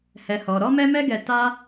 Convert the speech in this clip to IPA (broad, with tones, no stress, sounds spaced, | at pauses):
h ɛ˧ h ɔ˧ ɾ ɔ˦ m ɛ˦ m ɛ˦ ɡ ɛ˧ t a˦